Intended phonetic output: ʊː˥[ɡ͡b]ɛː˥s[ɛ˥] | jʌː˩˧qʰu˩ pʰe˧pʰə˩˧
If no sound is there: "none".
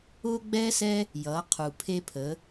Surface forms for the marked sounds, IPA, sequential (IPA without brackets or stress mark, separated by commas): ɡ͡b, ɛ˥